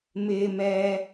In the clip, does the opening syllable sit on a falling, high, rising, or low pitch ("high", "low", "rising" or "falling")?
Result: low